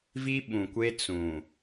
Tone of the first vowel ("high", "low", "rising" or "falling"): high